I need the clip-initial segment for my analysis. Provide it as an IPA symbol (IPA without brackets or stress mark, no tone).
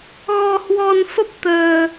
ɣ